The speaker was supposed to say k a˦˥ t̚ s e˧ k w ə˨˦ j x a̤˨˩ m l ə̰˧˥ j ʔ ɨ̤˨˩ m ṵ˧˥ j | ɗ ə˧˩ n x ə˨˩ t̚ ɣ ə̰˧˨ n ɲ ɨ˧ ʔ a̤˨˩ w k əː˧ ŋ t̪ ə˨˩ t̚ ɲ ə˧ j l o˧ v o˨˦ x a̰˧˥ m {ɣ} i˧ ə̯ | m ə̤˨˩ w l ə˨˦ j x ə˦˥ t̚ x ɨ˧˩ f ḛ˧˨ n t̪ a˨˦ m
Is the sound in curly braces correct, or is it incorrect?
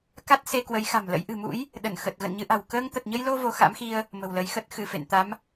incorrect